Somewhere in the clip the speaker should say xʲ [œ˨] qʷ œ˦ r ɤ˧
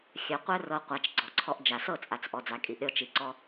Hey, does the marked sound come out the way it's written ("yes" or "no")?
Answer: yes